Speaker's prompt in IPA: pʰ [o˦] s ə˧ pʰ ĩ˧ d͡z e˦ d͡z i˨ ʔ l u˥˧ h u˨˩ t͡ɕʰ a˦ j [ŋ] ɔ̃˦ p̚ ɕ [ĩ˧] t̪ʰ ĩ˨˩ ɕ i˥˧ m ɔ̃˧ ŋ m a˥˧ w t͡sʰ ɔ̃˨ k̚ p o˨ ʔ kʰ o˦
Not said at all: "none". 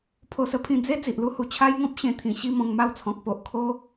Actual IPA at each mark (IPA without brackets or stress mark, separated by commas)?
o˧, ŋ, ẽ˧